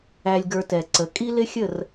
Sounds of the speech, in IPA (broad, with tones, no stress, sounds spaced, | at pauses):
æ˧ lʲ ɡ ə˞˧ t ɛ˨ ǀ ə˨˦ kʼ i˦ l ɪ˦ xʲ ə˦˨ r